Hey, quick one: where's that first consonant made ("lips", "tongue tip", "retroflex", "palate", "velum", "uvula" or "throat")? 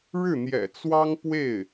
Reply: retroflex